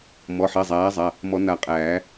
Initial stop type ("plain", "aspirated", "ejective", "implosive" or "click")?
ejective